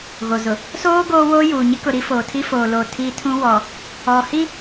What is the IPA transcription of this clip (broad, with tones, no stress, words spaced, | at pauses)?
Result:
ɣo˨zʊ˨ | soː˦ ɡoː˦woː˦juː˨ ɲɪ˦kʊ˨ ɾi˦foː˨tʰi˦ foː˨lo˨ tʰi˨ tʰũ˦wɔ˨ | ɔ˨hi˦